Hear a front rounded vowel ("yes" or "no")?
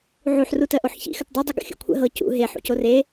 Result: no